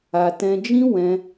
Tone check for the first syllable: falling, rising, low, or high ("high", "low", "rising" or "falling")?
low